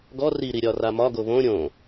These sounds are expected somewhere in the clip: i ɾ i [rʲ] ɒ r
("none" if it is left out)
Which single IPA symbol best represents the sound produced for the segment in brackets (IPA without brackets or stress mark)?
ɾʲ